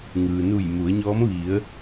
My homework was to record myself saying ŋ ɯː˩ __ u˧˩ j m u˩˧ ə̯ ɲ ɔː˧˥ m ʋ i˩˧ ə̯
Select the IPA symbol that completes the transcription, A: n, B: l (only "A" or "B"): A